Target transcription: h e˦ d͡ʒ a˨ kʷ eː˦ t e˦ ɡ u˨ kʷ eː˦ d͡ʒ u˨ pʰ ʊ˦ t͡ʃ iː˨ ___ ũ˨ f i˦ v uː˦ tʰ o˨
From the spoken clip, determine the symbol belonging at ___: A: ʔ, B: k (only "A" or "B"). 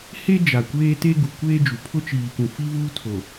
B